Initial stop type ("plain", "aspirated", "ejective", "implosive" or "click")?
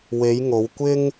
plain